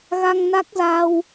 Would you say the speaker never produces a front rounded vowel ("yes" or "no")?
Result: yes